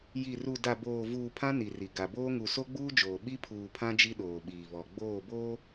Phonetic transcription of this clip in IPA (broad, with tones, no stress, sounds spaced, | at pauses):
j i˨ r u˨ d a˨ b oː˨ v uː˨ pʰ ã˦ n i˨ r i˨ ɡ a˨ b oː˦ ŋ u˨ s o˦ ɡ͡b uː˦ d͡ʒ oː˨ ɓ i˦ pʰ uː˨ pʰ ã˦ d͡ʒ i˦ ɗ oː˨ ɓ iː˨ β ɔ˨ ɡ͡b oː˦˨ b oː˦